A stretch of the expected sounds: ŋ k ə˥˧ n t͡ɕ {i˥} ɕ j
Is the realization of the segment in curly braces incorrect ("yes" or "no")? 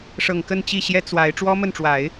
yes